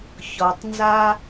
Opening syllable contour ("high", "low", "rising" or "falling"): low